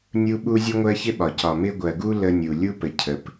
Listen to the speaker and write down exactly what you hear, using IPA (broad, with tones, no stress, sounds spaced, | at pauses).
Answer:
nʲ u˦ ɓ u˦ zʲ u˦ ŋʷ ɜ˦ ç ɪ˦ ɓ ɒ˨ c ɒ˨ m ɪ˦ ɡʷ ɜ˨ ɡ u˦ l ə˦ nʲ u˨ lʲ u˦ p ə˨ cʰ ə˨ p